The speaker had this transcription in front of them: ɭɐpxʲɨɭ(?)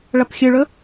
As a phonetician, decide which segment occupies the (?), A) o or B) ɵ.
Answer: B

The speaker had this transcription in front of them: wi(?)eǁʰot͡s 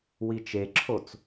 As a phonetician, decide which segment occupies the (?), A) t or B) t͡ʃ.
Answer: B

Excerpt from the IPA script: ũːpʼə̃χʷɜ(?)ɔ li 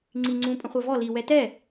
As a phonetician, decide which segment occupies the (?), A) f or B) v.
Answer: B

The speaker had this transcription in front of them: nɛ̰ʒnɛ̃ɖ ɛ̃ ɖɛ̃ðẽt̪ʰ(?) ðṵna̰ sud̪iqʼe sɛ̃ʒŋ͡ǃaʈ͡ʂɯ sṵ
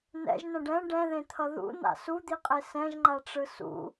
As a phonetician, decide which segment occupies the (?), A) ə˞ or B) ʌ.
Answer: B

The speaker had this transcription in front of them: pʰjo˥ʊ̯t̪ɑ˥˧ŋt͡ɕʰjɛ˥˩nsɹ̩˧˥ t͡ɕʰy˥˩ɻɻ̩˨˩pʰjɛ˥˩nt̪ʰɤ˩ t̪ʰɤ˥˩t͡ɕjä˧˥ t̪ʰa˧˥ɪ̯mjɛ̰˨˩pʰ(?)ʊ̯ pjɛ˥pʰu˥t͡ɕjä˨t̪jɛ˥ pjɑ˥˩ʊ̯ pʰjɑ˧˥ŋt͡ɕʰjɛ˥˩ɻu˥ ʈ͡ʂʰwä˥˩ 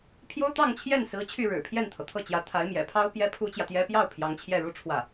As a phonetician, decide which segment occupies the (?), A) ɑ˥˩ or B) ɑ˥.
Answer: B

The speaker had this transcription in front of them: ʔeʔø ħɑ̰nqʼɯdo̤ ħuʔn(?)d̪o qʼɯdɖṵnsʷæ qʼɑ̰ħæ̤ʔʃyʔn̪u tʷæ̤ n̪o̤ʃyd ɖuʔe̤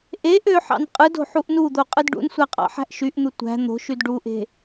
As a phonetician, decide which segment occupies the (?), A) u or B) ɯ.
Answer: A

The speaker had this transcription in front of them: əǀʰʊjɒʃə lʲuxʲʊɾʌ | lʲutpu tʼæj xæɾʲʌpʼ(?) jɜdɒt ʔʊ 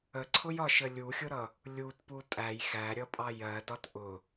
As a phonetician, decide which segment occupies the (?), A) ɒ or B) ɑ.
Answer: B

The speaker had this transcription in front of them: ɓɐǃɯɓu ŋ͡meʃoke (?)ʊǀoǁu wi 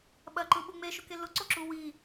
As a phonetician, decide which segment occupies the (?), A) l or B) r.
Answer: A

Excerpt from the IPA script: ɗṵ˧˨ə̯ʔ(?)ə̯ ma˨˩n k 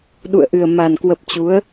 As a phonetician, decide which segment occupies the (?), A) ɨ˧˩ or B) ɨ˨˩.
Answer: B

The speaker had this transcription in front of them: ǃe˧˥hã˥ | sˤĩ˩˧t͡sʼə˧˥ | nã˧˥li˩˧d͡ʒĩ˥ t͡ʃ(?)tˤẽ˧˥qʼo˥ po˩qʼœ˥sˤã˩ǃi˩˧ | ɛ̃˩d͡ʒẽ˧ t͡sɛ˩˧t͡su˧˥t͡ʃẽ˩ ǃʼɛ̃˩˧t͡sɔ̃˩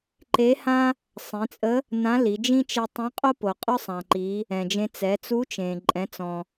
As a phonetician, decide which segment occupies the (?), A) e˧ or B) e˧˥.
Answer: A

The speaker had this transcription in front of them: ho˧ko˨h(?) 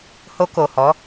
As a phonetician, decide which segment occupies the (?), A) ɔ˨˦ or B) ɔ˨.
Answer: A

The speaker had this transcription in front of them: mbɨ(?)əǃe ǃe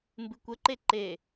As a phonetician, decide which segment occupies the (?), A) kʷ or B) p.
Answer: A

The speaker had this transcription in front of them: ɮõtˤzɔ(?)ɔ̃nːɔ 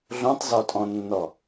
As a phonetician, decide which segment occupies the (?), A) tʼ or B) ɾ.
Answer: A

